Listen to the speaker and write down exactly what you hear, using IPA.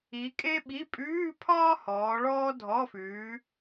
i˨˦ kʼ e˥ ɓ i˧˥˧ pʼ ʉː˧˥˧ pʰ ɒː˥ h ɔː˨˦ ɭ ɔː˥ dʱ ɔ˧˥˧ f ʉː˨˦

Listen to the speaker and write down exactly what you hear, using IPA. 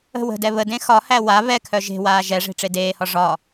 ə̤ w ə̤ d ɛ β ə d ẽ x ɒ h æ w a β ɛ kʰ œ ʒ e̤ w aː ʒ ɛ ʐ e̤ ʈ͡ʂ e d eː h ɒ ʐ ɒ

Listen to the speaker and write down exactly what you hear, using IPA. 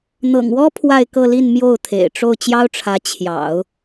n̪ ɤ̰˨˩ ŋ w ɔ˥ pʰ w a˥˧ ɪ̯ k ɤ˥˧ l i˥˧ n m j o˥˩ ʊ̯ t̪ʰ ḛ˨˩ ɪ̯ ʈ͡ʂ o˥˩ ʊ̯ t͡ɕ j ɑ˥ ʊ̯ ʈ͡ʂʰ ä˧˥ t͡ɕʰ j ɑ̰˨˩˦ ʊ̯

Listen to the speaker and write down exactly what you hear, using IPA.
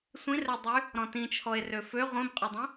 sʷ ĩ r ɛ dˤ y | ɾ ɔ̃ t ĩ t͡ʃʰ ɔ e̯ r ø f ø ʁʷ ĩ b qʼ ʏ dˤ ĩ

